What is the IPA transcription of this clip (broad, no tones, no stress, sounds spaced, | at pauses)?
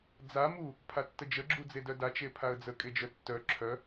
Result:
d͡z a m u | pʰ a tː ə d͡ʒ ə ɡ͡ǁ u d͡z e d œ d a t͡ʃ e pʰ a ə̯ d͡z ə kʼ e d͡ʒ œ tː œ ǁʰ œ